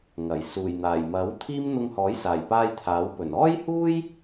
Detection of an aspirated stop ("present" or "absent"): present